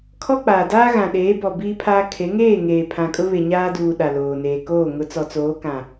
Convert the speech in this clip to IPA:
kʰ ɔ˦ k͡p aː˨ d aː˦ ɣ ã˨ ɗ eː˨˦ b ɔ˨ b iː˦ pʰ aː˦ kʰ e˨˦ ŋ eː˦˨ ŋ eː˨ pʰ ã˨ kʼ ʊ˦ β e˨ ɲ aː˦ d uː˨ ɗ a˨ l oː˨ n eː˨ k oː˦˨ ŋ ʊ˨˦ t͡s ɔ˨ t͡s oː˨˦ k ã˨

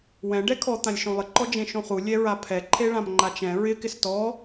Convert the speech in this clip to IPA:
w ɛ̃ ɖ ɛ kʰ ɔ t̪ ã lʲ ʃ õ lˠ ɪ ǃ ɔ d͡ʒ ẽ ʃ õ χ u lʲ ɛ ɹ a pʰ ɛ ǃʰ e ɭ ã m ŋ͡ǃ a t͡ʃ ɛ̃ ɹ ɪ k ɪ s t ɔ

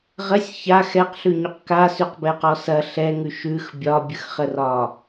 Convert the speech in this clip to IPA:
ʁ ə sʲ ç a x ɛ q ɬ ʉ ɲ ʉ q k a s ʉ q b ɛ q ɔ s ɐ ɬ ɛ ŋ ʉ ʃ ʉ x bʲ ɒ bʲ ə x χ ə r ɒ

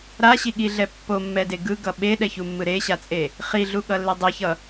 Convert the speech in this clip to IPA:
ɾ a ɕ i ɠ i ɮ ɛ pː o mː ɛ d e ɡ ɯ ɡ ʌ ɓ e ɗ ɛ ç u mː ɯ ɾ e ɕ a t͡sʼ e | χ i ɮ u ɠ ʌ lː e dˤ e ç ʌ

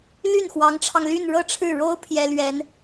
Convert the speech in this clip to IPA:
l y˥˩ n x w ɑ˧˥ ŋ ʈ͡ʂʰ ɑ˧ ŋ l y˥˧ n ɻ ɤ˥˧ ʈ͡ʂʰ ɻ̩˥˩ ɻ o˥ ʊ̯ pʰ j ɛ˥ l ɥ ɛ˧˥ n

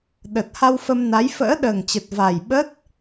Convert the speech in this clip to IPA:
ɗ ə˨˩ t̚ h a˧ w f ə˧ m n a˨˦ j f ə̰ː˧˥ ɗ əː˨˩ ŋ t͡ɕ ə˨˩ t̚ v a˨˩ j ɓ əː˦˥ t̚

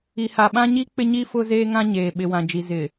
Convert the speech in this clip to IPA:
i˨ h a˨ ɓ ã˦ ɲ i˦ k͡p ɪ˦ ɲ i˦ f ʊ˦ z eː˦ ŋ ã˦ ɲ eː˨ ɓ ɪ˨ w ã˨ d͡ʒ i˨ z ɪ˨

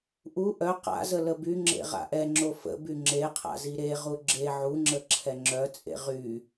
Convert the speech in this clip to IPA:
ʔ u ʔ œ q a̰ z ə l ə b y ŋ͡ǁ ḛ ʁ a̰ ʔ ɛ ŋ͡ǁ o f ə̰ b y ŋ͡ǁ e qʰ a̰ z i ɾ e ʁ u ɡ͡ǁ e ʕ u ŋ͡ǁ ə ǁʰ ɛ ŋ͡ǁ œ t͡sʼ ḛ ʁ y

